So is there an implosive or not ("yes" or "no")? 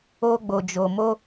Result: no